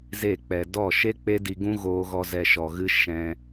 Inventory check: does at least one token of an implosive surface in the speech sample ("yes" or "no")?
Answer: no